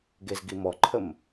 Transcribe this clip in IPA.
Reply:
ɡ e z ɡ i m ɔ ǃʰ ə m

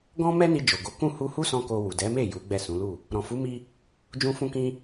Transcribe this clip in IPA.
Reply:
ɡ ɔ̃˦ m ɛ˦ n i˧ d͡ʒ o˨ ɡ o˨˦ k ũ˦˨ h u˧ h u˦ s ɔ̃˦ k o˧ w u˨ d ɛ˨˦ m e˦˨ j u˨˦ ɡ͡b ɛ˦˨ s ũ˨˦ l u˦˨ | ɾ ɔ̃˨ f u˨˦ m i˧ | d͡ʒ ũ˧ f ũ˧ k ĩ˧

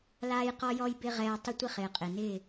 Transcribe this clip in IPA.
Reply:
l aː˦ j q ɔ˦ j ɔ˦ j b ɪ˦ ʁ ɛː˧ tˤ ɪ˦ tʷ ɪ˦ χ ɪː˨ qʼ ɪ˨ n ɪː˦˨

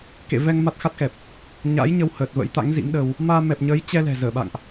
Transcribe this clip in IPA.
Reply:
k ḛ˧˨ v ɛ˧ ŋ m a˦˥ t̚ x a˦˥ t̚ x ɛ˨˩ p̚ | ɲ a̰ː˧˥ j ɲ ə˧ w h əː˨˩ t̚ v ə̰˧˥ j t̪ a̰˧˥ ŋ z ḭ˧˥ m ɗ ə˧ w | m aː˧ m ɛ˨˩ p̚ ɲ ə˨˦ j t͡ɕ ɛ˧ l ɛ̤˨˩ z əː˧˩ ɓ a̰˧˨ ŋ ʔ

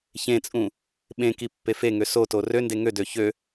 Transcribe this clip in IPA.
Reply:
ç ẽ t͡sʼ ũ | ɓ ẽ k i pː e f e ŋ ø s o t o r ø n d e ŋ ø d ø ç ø

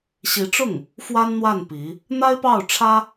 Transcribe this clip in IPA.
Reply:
ɕ i˧˥ ʈ͡ʂ ʊ˥˩ ŋ | f w a˥ n n̪ w a˥˩ n p i˧˥ | n̪ a˥ ɪ̯ p ɑ˥˩ ʊ̯ ʈ͡ʂʰ ä˥

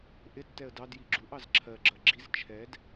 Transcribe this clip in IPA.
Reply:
ʔ ɪ tː ɛ ə̯ d ɑ d j i ɡ͡ǁ u ʔ ɑ z ǁʰ ɜ ɡ͡ǁ ɜ ɡ͡ǁ i z t͡ʃʰ ɛ d

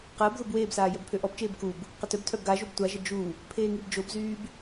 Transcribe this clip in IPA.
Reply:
q əː b ð o b w eː b s aː j œ b pʰ ø ʔ ɔ b t͡ʃ eː b k u b | q ə t œ b tʰ œ b ɡ a ʒ o b tʷ a ʒ ə d͡ʒ u | pʰ eː ŋ i b d͡ʒ o b z yː b

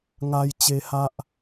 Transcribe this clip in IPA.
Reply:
ŋ a˧ j t͡ɕ e˧ h a˦ ʔ

